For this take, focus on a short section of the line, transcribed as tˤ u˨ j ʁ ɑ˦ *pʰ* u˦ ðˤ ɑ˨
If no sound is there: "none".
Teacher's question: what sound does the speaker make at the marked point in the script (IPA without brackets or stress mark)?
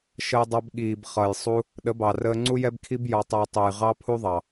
pʰ